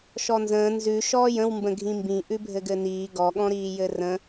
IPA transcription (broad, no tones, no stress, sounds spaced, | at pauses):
ʃ ɔ n z ə̃ː n z ʉ ʃ ɔː j ə̃ w m b ə̃ ɡʱ ĩ m b ĩ ʔ ʉ bʱ ɘ ɡ ɘ n iː ɡ ɔ ɠ ɔ̃ ɾ iː j ɘ r ə̃